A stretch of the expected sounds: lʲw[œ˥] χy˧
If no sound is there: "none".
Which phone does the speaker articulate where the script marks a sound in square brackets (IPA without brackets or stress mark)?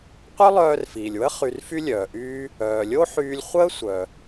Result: ə˥